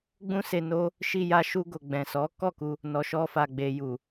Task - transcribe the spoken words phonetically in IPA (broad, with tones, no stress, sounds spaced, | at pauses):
ɡ͡b ũ˦ s e˧ n o˦ | ʃ i˧ j a˧ ʃ u˧ ɡ o˨ ɡ͡b ɛ̃˨ s ɔ˨˦ k ɔ˦˨ k u˧ | n ɔ˨ ʃ ɔ˧ f a˨ ɡ͡b e˨ j u˨